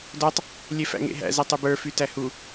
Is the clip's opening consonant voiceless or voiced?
voiced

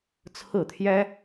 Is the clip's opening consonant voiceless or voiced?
voiceless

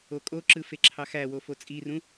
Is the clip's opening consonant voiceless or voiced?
voiceless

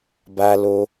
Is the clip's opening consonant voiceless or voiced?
voiced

